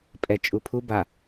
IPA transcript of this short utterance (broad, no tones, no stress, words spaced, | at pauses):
pʼɛ t͡ʃʼupʰu ba